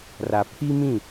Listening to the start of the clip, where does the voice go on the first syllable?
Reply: low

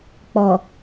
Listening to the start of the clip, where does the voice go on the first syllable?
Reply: low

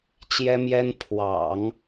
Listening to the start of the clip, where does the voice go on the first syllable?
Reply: high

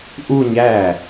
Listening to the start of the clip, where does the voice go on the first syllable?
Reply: falling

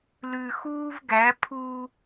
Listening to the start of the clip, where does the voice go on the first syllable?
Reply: low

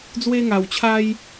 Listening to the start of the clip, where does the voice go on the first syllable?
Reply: high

